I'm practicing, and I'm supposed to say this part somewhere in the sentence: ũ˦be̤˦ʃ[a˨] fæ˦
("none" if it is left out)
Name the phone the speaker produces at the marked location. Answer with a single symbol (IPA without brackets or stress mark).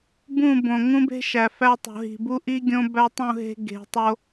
æ˨